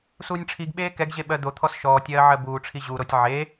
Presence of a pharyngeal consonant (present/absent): present